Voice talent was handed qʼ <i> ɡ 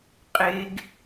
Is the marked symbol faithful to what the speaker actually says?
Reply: no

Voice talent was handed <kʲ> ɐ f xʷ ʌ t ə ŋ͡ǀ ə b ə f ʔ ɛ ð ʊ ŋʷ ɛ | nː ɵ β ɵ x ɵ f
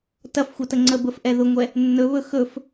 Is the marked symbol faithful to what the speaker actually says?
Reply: no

